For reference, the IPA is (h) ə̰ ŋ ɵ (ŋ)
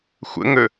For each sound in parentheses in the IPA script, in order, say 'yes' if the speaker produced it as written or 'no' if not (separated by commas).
no, no